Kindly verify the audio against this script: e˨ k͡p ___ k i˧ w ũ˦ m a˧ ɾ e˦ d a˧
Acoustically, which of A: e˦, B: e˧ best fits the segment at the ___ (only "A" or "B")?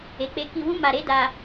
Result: B